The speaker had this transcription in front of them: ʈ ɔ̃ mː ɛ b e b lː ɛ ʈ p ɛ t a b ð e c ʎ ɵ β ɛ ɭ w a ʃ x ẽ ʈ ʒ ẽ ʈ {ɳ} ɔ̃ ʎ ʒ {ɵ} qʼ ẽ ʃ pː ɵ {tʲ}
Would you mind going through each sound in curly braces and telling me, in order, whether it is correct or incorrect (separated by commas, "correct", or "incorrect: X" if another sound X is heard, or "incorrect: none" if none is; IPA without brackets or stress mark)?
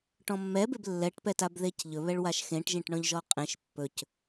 correct, incorrect: ɔ, incorrect: c